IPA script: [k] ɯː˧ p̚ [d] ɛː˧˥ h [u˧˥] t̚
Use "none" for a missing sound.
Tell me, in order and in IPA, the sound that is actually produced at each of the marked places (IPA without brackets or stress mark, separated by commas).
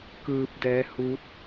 k, d, u˧˥